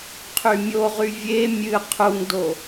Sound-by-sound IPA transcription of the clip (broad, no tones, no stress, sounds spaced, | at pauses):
qʰ y mʲ o ʁ y vʲ e mʲ ɨ qʰ u ŋ d o